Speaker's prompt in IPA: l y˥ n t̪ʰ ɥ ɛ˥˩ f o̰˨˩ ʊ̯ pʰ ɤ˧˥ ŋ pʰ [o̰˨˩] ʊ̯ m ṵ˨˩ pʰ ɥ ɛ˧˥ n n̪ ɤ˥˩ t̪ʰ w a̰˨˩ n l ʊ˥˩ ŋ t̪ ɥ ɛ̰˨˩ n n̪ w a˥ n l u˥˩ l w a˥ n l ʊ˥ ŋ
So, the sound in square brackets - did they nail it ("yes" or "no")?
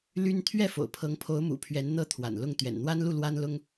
no